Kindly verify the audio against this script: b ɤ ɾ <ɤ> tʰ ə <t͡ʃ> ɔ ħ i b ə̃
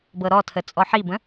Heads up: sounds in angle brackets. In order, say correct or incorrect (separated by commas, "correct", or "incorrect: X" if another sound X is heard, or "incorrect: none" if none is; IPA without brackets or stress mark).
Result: incorrect: ɔ, incorrect: t͡sʼ